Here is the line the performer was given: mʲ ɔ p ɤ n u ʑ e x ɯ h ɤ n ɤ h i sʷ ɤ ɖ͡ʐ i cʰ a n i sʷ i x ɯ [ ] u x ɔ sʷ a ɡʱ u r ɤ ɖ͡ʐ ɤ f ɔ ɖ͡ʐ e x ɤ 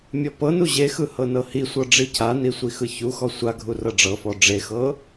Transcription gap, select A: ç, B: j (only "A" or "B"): A